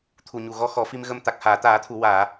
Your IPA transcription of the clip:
t̪ʰ u˨˩ ɲ u˨˩ ɣ ɔ˧˥ x ɔ˨˩˦ f i˧ m ɣ ə˧ m t̪ a˨˩ k̚ h aː˨˩˨ t̪ aː˨˩˦ t̪ʰ u˨˩˨ w aː˨˩˨

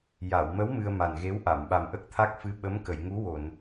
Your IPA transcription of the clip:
j a˨˩˨ w m ə˧˥ w m ɨ˧ ə̯ m a˨˩ n ɣ e˧˥ w ʔ a˨˩˨ m ɓ a˨˩ m ʔ ə˦˥ k̚ t̪ʰ a˦˥ k̚ f ɨ˧˥ ɓ ə˧˥ m k ə˨˩˨ j ŋ u˧˥ w o˨˩˨ n

